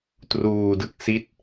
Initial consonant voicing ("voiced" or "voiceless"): voiceless